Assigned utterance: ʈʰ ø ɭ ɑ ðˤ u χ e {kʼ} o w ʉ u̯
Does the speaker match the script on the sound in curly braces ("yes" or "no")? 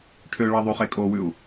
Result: yes